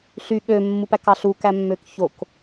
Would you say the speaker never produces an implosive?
no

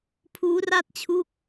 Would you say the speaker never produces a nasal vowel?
yes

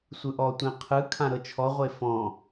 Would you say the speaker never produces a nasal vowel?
no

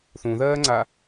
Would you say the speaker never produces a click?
no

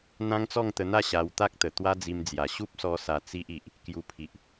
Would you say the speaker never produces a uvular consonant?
yes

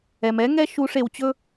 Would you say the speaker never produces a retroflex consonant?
no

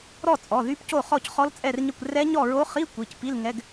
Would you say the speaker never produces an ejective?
no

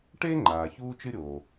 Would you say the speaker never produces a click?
no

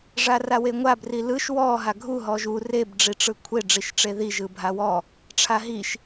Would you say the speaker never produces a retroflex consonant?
no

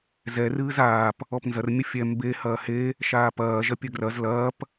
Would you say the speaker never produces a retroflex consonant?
yes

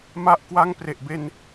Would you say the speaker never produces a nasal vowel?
yes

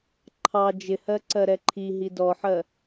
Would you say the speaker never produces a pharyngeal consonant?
no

